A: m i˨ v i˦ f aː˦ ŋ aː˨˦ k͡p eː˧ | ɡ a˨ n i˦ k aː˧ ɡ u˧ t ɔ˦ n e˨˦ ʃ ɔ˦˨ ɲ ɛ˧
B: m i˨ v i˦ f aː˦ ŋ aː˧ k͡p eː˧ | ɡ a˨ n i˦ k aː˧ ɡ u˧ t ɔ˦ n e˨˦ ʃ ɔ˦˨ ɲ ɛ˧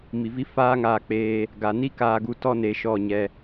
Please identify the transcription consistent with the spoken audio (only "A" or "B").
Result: B